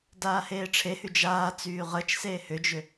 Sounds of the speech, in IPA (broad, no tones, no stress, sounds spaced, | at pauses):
d aː h eː ʈ͡ʂʰ e h y d͡ʒ aː t͡s yː ʁ ə t͡ʃ s eː h ʏ d͡ʒ ʏ